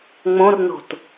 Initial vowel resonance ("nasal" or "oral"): nasal